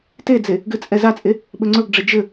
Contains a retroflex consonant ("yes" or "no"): yes